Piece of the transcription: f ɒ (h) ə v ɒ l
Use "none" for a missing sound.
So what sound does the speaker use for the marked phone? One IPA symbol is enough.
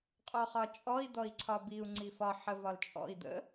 ħ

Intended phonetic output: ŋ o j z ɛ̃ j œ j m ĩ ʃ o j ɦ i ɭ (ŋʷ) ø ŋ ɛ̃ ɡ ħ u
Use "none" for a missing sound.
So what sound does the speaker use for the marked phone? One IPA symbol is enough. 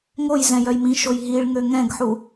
ŋ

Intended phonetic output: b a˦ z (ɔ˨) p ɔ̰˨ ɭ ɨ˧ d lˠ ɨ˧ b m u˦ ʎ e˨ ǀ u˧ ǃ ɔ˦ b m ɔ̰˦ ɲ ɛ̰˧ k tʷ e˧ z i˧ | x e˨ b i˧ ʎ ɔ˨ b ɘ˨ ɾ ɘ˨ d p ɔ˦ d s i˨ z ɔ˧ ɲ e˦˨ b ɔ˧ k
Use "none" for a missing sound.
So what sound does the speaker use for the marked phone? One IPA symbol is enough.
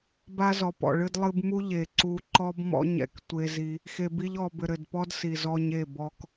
ɔ˨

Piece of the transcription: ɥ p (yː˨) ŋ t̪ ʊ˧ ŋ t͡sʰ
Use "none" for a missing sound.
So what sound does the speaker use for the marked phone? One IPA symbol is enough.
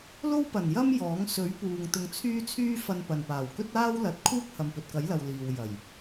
uː˨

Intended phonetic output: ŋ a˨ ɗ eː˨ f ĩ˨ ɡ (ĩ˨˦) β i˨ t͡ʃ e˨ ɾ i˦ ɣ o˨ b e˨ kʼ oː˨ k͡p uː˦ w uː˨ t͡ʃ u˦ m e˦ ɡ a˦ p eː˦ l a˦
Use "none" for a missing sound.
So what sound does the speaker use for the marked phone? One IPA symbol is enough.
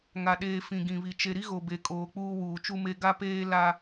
ĩ˨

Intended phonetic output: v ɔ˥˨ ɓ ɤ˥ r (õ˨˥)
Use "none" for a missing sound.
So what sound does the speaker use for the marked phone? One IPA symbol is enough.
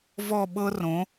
õ˨˥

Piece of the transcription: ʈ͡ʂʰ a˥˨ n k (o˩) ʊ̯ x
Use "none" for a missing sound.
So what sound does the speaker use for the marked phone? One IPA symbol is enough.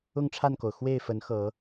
o˩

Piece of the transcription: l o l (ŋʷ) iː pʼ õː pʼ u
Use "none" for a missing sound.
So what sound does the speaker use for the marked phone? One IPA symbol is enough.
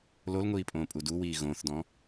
ŋʷ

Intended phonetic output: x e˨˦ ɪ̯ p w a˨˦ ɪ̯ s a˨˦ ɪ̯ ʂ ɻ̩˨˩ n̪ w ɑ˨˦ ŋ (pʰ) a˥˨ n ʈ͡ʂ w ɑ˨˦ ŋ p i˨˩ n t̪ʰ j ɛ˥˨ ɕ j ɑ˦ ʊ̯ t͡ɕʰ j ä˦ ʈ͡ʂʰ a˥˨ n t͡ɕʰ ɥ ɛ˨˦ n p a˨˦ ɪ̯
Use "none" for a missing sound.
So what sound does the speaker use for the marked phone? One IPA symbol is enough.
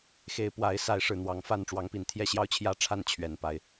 f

